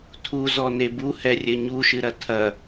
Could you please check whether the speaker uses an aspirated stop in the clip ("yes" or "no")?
yes